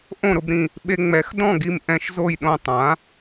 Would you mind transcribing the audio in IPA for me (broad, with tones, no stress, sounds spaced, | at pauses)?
ʔ õ˥˩ ɾ ʊ˧ b ɾ ĩ˥˩ | ɓ e˧ ŋ͡m ɛ˩˥ x d ɔ̃˥˩ ɡ i˧ m ʔ ɛ̃˧ ʃ z o˥˩ j ɗ õ˥˩ tˤ ã˩˥